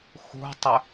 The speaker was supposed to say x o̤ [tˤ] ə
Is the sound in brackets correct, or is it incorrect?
correct